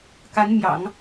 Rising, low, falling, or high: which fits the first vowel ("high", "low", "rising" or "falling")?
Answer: rising